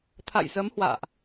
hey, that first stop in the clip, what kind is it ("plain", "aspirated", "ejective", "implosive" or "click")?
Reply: aspirated